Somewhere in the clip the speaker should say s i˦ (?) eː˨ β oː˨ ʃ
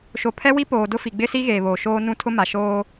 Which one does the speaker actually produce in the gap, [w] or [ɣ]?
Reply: ɣ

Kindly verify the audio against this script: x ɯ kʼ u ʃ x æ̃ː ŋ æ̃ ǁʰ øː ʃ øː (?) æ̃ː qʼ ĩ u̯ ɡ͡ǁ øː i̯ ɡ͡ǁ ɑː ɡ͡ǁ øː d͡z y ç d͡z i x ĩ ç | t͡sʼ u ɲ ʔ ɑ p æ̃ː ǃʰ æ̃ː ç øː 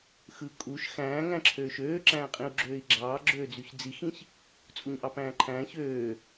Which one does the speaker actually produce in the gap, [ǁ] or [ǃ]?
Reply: ǁ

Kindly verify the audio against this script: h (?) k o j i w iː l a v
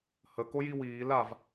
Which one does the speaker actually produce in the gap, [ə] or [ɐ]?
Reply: ə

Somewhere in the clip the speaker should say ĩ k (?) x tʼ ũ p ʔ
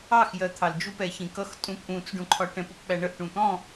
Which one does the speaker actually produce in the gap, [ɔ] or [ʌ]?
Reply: ʌ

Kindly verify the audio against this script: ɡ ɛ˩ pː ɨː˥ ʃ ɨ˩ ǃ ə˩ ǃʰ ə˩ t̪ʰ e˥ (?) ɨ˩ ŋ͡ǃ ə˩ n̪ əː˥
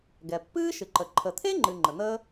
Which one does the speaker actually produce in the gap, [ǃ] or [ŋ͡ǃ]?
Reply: ŋ͡ǃ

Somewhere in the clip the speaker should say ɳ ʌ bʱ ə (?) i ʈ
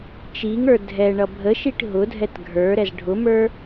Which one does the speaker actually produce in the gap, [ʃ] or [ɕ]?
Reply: ʃ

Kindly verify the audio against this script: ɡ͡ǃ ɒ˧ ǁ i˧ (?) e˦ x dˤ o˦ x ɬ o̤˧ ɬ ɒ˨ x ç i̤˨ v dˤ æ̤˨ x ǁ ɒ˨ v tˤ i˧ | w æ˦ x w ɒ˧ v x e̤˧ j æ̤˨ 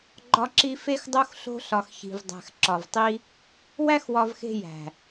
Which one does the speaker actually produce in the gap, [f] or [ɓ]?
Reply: f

